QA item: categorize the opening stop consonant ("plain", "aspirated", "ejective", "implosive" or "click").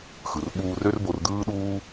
implosive